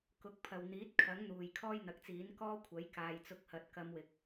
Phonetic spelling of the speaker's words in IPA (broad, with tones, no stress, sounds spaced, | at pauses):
k ʊ˨ k̚ pʰ ɐ˨ w n̪ iː˨˥ t̚ kʰ ɐ˨˥ ŋ n̪ uː˨ j kʰ ɔː˥ j n̪ ɐ˨˥ k̚ t͡s iː˨˥ n k ɔː˥ kʷʰ ɐ˨˥ j k aː˨ j t͡s ʊ˧ k̚ h ɐ˨ t̚ k ɐ˨˧ m w ɪ˨ k̚